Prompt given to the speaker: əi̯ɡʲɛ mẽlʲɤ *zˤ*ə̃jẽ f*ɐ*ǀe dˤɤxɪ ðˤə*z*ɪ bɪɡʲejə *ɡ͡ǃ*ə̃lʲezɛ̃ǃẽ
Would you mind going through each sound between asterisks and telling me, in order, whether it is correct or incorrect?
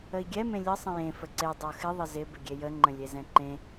incorrect, incorrect, correct, incorrect

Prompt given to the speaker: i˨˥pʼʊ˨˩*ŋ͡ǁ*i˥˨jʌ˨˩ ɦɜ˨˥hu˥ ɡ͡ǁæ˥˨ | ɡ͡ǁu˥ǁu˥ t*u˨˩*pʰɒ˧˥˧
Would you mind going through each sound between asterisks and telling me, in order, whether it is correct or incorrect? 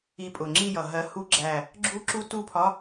correct, incorrect

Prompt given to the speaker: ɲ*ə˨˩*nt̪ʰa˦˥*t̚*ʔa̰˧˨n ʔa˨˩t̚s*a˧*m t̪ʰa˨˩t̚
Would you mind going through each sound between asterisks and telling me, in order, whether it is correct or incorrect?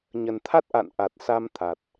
correct, correct, correct

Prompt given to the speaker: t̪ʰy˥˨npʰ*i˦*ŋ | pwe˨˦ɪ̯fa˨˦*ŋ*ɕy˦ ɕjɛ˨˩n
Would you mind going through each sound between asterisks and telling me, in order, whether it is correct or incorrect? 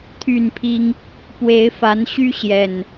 correct, incorrect

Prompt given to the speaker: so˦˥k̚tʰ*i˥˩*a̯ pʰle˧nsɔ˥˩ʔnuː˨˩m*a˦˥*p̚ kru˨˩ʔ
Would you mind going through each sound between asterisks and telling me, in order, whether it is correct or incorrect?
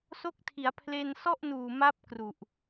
incorrect, correct

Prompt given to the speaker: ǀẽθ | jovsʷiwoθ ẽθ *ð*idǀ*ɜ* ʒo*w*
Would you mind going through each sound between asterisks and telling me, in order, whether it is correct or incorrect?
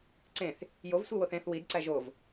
incorrect, incorrect, incorrect

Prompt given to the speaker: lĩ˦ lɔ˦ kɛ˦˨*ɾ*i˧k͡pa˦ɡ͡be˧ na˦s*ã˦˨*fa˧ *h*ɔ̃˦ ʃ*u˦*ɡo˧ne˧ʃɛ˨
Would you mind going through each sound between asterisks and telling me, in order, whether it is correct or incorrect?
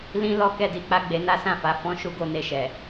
incorrect, correct, incorrect, correct

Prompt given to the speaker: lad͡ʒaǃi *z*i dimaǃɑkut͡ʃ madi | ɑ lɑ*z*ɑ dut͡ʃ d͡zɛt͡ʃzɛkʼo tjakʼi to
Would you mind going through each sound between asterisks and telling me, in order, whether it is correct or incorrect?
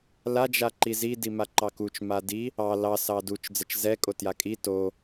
correct, incorrect

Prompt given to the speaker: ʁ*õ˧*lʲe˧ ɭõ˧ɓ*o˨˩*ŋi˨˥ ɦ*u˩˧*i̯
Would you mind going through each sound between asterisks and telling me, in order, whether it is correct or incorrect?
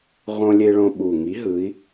correct, incorrect, incorrect

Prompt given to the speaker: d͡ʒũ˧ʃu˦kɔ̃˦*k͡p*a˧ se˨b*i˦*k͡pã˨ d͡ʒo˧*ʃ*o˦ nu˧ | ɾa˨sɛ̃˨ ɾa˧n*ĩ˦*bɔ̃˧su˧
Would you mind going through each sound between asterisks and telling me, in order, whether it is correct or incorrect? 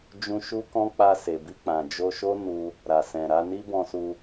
correct, incorrect, correct, incorrect

